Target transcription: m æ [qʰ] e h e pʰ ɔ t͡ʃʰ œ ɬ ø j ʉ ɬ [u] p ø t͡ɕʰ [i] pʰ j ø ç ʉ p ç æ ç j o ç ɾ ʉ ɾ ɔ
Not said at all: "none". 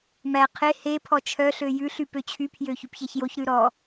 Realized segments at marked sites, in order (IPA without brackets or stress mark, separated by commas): qʰ, y, y